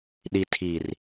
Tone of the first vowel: low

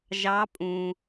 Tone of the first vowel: rising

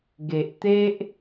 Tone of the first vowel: low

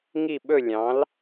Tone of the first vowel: falling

